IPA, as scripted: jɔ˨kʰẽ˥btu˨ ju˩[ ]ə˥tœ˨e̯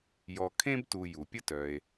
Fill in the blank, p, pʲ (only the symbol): pʲ